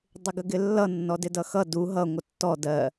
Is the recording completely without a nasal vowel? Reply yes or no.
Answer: yes